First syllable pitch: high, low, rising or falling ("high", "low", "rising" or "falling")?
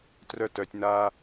high